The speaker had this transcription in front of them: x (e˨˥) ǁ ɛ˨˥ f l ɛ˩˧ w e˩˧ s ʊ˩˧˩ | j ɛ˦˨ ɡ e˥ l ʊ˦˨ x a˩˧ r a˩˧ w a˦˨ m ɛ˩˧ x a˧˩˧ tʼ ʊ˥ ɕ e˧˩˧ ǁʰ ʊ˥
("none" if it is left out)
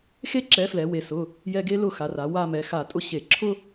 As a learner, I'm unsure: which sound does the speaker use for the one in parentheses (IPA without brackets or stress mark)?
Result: e˥